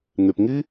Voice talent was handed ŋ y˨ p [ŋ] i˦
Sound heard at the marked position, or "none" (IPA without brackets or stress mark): ŋ